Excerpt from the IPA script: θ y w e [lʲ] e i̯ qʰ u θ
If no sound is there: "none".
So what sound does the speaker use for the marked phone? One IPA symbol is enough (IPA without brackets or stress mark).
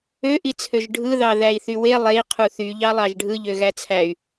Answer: lˠ